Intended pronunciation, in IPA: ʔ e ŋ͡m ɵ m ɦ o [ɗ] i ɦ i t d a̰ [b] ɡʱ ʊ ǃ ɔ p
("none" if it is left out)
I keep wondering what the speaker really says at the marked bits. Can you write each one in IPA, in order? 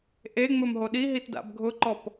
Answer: ɗ, b

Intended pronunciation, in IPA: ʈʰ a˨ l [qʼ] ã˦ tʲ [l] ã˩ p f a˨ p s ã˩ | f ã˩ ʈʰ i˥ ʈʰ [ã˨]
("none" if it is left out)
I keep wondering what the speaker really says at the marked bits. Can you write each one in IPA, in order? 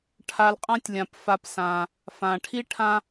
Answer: qʼ, lʲ, ã˦

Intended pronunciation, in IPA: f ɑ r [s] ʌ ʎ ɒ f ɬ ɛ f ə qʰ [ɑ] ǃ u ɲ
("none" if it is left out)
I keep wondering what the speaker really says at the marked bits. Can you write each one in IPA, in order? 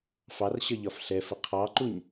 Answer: ɕ, ɑ

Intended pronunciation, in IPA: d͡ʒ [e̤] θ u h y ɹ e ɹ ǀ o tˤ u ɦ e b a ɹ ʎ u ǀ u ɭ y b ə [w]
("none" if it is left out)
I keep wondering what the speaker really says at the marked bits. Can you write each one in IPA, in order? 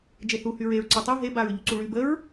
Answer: e, ɹ

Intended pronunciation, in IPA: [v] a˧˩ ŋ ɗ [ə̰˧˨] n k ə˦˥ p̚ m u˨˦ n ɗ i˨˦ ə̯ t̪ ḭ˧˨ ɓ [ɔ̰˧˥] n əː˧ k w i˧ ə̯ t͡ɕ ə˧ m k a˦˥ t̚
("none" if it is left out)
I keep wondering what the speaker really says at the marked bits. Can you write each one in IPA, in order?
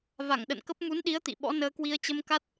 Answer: v, ə̰˧˨, ɔ̰˧˥

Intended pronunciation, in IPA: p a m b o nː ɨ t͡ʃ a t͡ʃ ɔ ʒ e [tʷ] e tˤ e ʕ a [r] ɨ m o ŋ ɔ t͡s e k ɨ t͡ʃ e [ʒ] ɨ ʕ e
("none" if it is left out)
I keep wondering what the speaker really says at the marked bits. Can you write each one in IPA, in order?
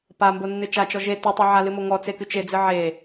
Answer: t, l, d͡z

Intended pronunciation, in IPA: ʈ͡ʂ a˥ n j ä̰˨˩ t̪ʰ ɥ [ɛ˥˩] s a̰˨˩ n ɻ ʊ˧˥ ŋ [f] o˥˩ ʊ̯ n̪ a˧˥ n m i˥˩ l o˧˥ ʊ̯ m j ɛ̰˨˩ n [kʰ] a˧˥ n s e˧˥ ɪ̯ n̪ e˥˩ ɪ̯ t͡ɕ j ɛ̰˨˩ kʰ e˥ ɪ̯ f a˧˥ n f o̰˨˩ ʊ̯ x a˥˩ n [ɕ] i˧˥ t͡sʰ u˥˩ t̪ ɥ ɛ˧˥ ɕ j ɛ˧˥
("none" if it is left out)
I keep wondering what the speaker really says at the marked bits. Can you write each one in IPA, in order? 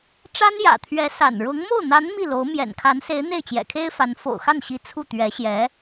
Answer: ɛ˧˥, m, kʰ, ɕ

